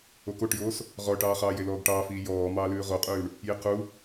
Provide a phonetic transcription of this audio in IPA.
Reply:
o k o ʈ j oː s | ʁ ɔ ʈ ɑː χ ɑː j e l ɔː ɡ ʈ ɑː f iː j ɔː m ɑː l ʉː ʁ o qʼ ʉː ɳ | j i q u

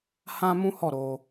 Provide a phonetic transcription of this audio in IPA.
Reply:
h ã˦ m ũ˦ h ɔ˦˨ ɾ o˧

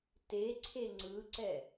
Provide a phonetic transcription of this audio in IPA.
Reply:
t e ǀʰ e ŋ͡ǀ ɯ ǀ ɛ

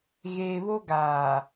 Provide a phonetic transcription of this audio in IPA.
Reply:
ɣ eː˨ β o˦ ɡ aː˨

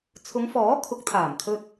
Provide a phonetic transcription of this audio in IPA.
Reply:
t͡sʰ ʊ˨˧ ŋ f ɔː˨˥ kʰ ʊ˨˥ k̚ t̪ʰ aː˨˩ m kʰ ɵ˧ t̚

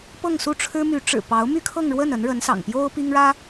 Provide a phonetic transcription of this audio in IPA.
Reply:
p ɤ˥˧ ŋ s u˥˩ ʈ͡ʂʰ ɻ̩˥ m y˧˥ ʈ͡ʂ ɻ̩˨˩ p ɑ˧˥ ʊ̯ m y˥ kʰ ɤ˥˧ ŋ ɻ w ə˥˩ n ə˧˥ n ɻ ə˧˥ n s ɑ̰˨˩ ŋ p j o˥ ʊ̯ p i˥ ŋ ɻ ä˥

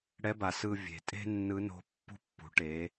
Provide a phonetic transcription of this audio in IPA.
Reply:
ɽ ɛ˧˥ b a˩ s ɯ˧ vʲ e̤˩ tʼ e̤˥ nː ɯ˧˥ n o̤˧˥ pː ṳ˥ pː ṳ˩˧ ʈ e˩˧

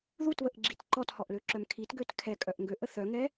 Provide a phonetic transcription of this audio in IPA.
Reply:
ð u t β ə ʔ ɡ͡ǁ i t ǃ ɔ t h ɔ ʔ l ø ǁ œ m kʰ i t ɡ ø t kʰ ɛ kʼ œ ʔ ŋ ɡ ø ʔ ə θ œ ŋ ɛ

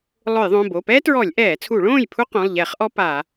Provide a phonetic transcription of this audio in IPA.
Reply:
lˠ ʊ˧˩˧ j ðˤ õ˩˧˩ b o˩˧˩ p ɛː˥ t ɹ ɔ˧˩˧ lʲ ʔ ɛː˧˩˧ t͡sʰ u˧˩˧ ɭ õː˥˨ j pʰ u˥ q õ˩˧˩ lˠ ʎ ɛ˧˩˧ χ ʔ ɔ˥ p a˧˩˧

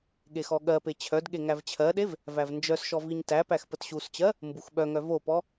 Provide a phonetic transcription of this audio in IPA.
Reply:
ɠ e x ɔ ɠ ɜ p e t͡ɕʰ œ d ɠ e ŋ æ v t͡ɕʰ ɜ ɗ e v | v æ v n d͡ʒ œ s ʃ ɔ v i ɲ t æ p æ x p ə t ɕ u s t͡ɕ ɜ | m b u x ɓ œ ŋ œ v o p ɔ

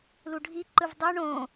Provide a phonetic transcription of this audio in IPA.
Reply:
l u ɖʱ i ǃ ɯ v dˤ o ɳ õː

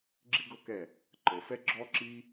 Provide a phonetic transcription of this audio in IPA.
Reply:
ɡ͡ǁ i˦ ɡ ɤ˦ k ɛ˦˨ | ǃ ɤ˨ f ɛ˦ ɡ͡ǁ ɔ˦ ǁ i˦

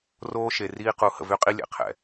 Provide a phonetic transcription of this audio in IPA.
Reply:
r oː˦ ʃ e˨ r iː˦ q u˨˦ h ə̰˨ v y˦ qʼ i˦ lʲ ɛ̰˨ qʰ ɛ̰˨

